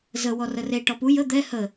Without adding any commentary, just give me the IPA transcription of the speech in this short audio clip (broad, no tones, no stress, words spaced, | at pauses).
zə wɔrəre ʈɔpu jə d̪ɛ hə